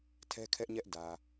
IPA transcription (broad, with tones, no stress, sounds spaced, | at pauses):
tʰ ɛ˦ kʰ ɛ˦ ʔ ɲ ɛ˦ ʔ d ä˨